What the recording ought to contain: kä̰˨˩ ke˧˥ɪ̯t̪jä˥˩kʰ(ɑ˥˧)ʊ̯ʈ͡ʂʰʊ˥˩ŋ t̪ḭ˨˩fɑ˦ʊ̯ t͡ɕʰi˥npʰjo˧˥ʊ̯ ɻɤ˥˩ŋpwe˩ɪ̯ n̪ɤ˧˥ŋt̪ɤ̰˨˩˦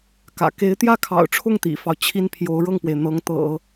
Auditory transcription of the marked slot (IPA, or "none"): ɑ̰˨˩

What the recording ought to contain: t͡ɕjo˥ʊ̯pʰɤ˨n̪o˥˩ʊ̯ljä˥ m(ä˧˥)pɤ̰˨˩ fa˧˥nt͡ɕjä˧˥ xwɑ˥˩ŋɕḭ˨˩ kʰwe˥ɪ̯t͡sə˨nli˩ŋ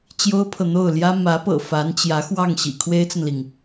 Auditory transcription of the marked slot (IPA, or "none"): ä˧˥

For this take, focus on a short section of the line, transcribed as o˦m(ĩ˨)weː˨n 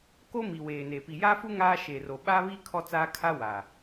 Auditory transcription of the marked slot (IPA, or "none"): i˨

